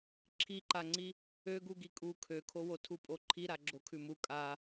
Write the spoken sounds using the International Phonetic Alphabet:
ǁʰiǃaŋ͡ǀi | øɡu ɡikʼu kʰøkʰowo tʰupʼoǃʰiɾa ɡ͡ǁokʰʉmu kʼa

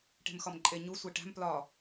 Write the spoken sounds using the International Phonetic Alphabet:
ʈe̤mxɒmǃʼe ɲu sʷeʈæ̤m plɒ

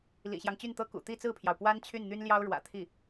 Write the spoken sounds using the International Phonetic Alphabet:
lḭ˨˩ɕjɑ˦ŋ t͡ɕy˥˩nt̪ɤ˥ kṵ˨˩ t̪i˥˧t͡sɹ̩˥˩pʰjɑ˩ʊ̯pwa˥n t͡ɕʰy˥˩nn̪y˥nljɑ˥ʊ̯ ɻwä̰˨˩t̪ʰi˥˩

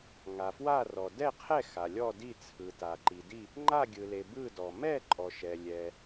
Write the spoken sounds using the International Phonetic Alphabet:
ŋa˩fwa˥˨rɔ˩ dɛ˥˨qʰɛ˥˨ xa˩lʲɔ˥˨di˥˨ t͡sʰɯ˩ta˩ ǃi˩di˥˨ | ŋ͡ǃa˥˨ɡʲɯ˩le˩ bɯ˥˨dɔ˩ mɛ˥˨ǃʼɔ˩ʃɛ˩ lʲɛ˩

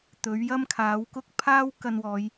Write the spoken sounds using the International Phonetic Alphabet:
t̪ɵ˨˥ɥjɐ˥mkʰaː˨˥wkʊ˥k̚ pʰaː˥w kɐ˧nwɔː˨˧j

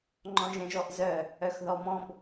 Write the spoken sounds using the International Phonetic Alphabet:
ŋ͡ǃɔ̃ʒɛ̃ʒɔʔzœ | œxðɔmɔ̃b

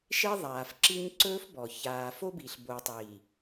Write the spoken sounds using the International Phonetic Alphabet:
ʃe˦ðˤaː˨fǁi˦ɲ ǀɵː˦fbɔ˨ çaː˨fo˦bi˨ɬ bo˨tˤiː˨

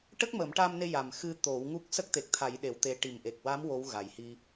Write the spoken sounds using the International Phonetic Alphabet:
ʈə˦˥k̚məː˨˩˦mʈa˧mne˧ ja˨˩mxɨ˧ t̪o˨˩˦wŋu˦˥k̚ sə˦˥k̚t̪e˨˩k̚t̪ʰa˨˩˦j ɗe˨˩˦wt̪e˧˥ ʈi˨˩mʔe˨˩k̚wa˧˥m wo˧˥wɣa˨˩jhi˧

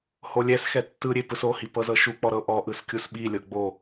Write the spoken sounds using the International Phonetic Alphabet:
holʲɛsxɛ tːɯɾʲe pɯsohi pɤzɤʃuk͡pɔ ɾɤʔɔʔɯs kʲusɓilʲɤ ɡ͡bo

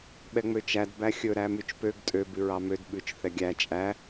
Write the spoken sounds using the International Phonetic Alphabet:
ɓɛŋ͡møt͡ʃæd bæxʲɵ ɾæmyt͡ʃpøɡ tʼø bʉɹɑmød ɓʉt͡ʃ θɛɡʲæ t͡ʃʼæ

